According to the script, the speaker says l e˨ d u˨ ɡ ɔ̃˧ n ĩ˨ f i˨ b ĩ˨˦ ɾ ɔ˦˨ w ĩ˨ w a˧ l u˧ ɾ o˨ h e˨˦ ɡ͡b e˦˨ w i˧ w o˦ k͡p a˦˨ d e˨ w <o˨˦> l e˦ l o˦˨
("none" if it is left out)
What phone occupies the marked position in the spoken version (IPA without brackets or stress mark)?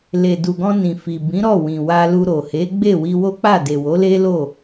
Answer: o˨˦